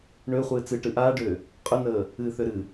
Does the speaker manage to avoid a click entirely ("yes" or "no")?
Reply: yes